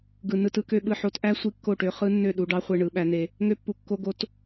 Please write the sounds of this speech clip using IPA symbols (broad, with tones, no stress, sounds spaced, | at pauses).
ɡ ɯ˨ n ɯ˧ t ɯ˧ k ø˦ ɓ ɯ˧ ħ o˧ t ʔ æ˦ sʷ i˧ kː o˦˨ ʈ ø˧ χ ɯ˦ nː ø˦˨ ɗ u˧ ɖ ɑ˦ χʷ e˧ ɳ ɯ˨˦ ɓ æ˨˦ n e˧ | ŋ ø˧ pː u˨ kː o˧ ɡ o˧ t